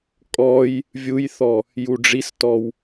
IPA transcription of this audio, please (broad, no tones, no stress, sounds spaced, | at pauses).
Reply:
kʼ ɔ j | vʲ u j θ ɔ | j u ɖ͡ʐ i s t ɔ w